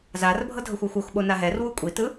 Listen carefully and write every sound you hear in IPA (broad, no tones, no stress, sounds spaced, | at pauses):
z a r bʱ ɤ dʱ ɤ xʷ ɔ xʷ o x ɓ o n a ɦ ɛ r w u kʷʼ i t ɯ